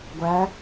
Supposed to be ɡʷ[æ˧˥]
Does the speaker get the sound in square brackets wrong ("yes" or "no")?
yes